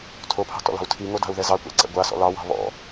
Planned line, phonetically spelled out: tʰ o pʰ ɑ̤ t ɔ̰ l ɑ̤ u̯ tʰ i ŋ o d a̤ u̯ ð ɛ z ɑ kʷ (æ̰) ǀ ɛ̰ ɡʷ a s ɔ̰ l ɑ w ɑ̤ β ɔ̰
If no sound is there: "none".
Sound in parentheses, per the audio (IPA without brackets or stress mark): æ̰